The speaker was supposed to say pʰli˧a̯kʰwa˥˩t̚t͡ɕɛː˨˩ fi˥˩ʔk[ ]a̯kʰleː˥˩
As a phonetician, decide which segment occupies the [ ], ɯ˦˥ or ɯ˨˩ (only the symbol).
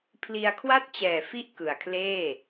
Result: ɯ˨˩